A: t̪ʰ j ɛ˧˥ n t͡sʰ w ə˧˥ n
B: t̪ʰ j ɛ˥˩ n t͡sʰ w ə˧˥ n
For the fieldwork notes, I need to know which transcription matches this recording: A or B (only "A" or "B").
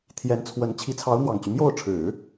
A